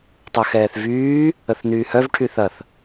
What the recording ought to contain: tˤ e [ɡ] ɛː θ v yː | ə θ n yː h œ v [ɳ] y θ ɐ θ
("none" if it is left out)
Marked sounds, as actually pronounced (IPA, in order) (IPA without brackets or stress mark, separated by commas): x, ʈʰ